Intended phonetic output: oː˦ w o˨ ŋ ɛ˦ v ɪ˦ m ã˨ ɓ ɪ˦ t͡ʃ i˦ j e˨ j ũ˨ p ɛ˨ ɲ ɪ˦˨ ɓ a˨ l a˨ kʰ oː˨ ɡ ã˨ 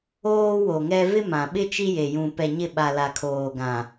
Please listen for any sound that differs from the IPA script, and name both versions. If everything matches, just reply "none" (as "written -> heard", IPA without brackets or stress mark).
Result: none